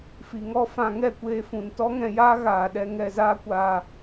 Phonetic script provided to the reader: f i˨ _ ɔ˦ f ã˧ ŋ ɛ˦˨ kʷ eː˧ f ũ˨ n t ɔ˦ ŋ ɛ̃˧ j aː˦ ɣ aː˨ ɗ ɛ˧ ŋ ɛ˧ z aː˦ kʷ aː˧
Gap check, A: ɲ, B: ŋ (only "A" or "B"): B